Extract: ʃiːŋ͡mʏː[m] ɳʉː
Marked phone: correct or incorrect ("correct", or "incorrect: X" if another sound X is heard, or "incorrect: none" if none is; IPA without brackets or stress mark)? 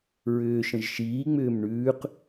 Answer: correct